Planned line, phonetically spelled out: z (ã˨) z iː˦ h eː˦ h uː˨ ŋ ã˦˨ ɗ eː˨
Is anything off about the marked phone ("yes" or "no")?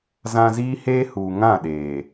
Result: no